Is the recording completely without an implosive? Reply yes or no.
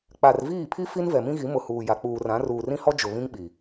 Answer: no